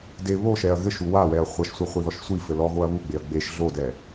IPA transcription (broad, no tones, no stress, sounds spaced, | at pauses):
d e β o ʃ ɛ ɐ̯ ɣ ɘ ʃ u w a w ɛ ɐ̯ χʷ ɐ ʃ sʷ ɛ χʷ e ð ɔ ʃ sʷ i f ɘ l ɔ ɣ o ɐ̯ β u ɡ͡b e ɐ̯ ɡ͡b e ʃ ɮ o d ɛ